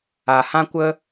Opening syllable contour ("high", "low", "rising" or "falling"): low